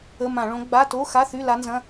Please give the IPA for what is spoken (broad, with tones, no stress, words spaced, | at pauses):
ə˧˥˧ mã˧˩˧ɭõ˧˥ ɡ͡ba˧˥˧to˧˥˧xa˧˥˧θy˧˥˧ la˧˥nzɐ̃˧˥˧